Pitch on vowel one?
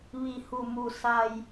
low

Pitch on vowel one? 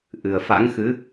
low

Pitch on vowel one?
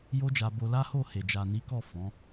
high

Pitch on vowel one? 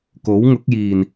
rising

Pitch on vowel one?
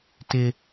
high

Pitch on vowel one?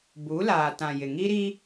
rising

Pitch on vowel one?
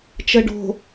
low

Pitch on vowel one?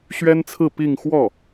high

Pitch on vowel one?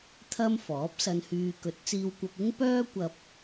high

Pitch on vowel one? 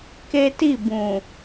high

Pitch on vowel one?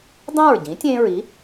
falling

